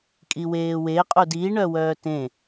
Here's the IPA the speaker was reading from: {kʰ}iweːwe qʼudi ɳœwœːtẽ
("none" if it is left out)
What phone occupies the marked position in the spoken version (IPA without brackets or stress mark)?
kʼ